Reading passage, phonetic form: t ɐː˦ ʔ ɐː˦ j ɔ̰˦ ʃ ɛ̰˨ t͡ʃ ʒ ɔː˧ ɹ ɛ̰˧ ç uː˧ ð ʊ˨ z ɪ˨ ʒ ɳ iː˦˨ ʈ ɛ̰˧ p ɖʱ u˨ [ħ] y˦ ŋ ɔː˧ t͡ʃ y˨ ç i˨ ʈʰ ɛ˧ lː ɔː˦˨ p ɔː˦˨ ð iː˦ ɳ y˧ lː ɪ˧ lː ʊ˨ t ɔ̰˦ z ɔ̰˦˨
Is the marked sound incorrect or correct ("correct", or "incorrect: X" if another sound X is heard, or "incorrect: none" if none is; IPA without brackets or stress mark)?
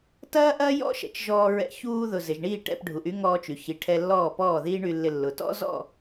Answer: incorrect: ʔ